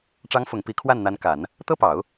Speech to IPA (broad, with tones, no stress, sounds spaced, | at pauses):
ʈ͡ʂ ɑ˧˥ ŋ f ʊ˨˩ ŋ p i˧˥ kʰ w a˥˩ n n̪ a˧˥ n k a˨˩˦ n | t̪ ɤ˥ p ɑ˨˩˦ ʊ̯